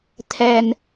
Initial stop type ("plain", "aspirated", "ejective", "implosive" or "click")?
aspirated